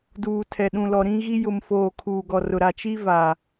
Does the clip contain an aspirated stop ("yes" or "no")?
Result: yes